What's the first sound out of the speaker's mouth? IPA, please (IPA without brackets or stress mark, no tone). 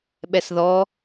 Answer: ɓ